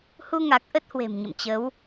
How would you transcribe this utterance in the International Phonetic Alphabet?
h u˧ ŋ a˨˩ k̚ ʔ ə˦˥ t̚ h w e̤˨˩ m ɲ ə̰˧˨ m t͡ɕ ə˨˦ w

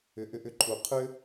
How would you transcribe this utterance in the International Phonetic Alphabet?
ʏ˩˥ ʔ ʏ˧ ʔ ʏ˧ ǃʰ u˩ qʰ ʏ˥

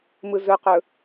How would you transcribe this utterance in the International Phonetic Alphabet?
m ɯ z ɵ q ɵ

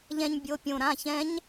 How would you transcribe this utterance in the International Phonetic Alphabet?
ʎ ɛ̃˧ ɲ bʲ o˩˧˩ pʲ õ˧˩ ɾ ã˩˧˩ ç ɛ̃˧˥ ɲ

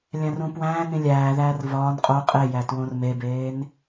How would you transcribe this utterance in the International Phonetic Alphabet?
lʲ æ̃ r ũ p w æ̃ː n ĩ lʲ æː ð æː r v ɒː n qʼ o qʼ e j æ t w õ r m e b eː n

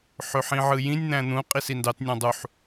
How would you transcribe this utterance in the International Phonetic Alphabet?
ħ ø ħ ĩ ʕ ɯ j ĩ nʲ n̪ æ̃ n̪ ũ qʼ i s i n d ɑ t nʲ ɑ̃ dˤ u ħ

